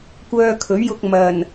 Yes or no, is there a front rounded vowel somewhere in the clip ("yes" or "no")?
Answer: yes